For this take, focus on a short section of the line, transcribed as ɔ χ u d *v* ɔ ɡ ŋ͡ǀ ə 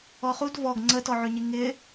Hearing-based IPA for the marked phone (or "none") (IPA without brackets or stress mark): v